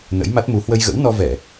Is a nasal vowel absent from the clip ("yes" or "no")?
yes